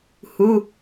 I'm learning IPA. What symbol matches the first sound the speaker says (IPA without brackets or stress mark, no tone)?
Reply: h